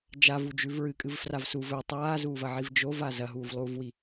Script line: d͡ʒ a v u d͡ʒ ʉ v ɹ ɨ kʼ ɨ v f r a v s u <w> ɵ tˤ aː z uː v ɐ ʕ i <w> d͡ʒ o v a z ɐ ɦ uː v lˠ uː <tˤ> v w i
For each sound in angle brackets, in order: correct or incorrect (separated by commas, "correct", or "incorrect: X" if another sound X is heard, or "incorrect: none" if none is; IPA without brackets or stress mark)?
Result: incorrect: v, incorrect: v, incorrect: none